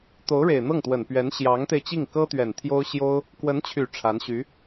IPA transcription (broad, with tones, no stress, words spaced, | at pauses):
t̪o˧˥ʊ̯ɻe˨˩ɪ̯n̪ɤ˥˩ŋt̪wə˨˩n pɥɛ˧˥nɕjɑ˧˥ŋt̪e˧ɪ̯t͡ɕi˥˩ŋ kɤ˥t̪ɥɛ˨˩n t̪ʰjo˥ʊ̯ɕjo˥ʊ̯ | kwə˧˥nt͡ɕʰy˨˩ ʈ͡ʂʰa˧˥nɕy˧˥